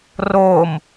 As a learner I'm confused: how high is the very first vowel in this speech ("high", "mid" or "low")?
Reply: mid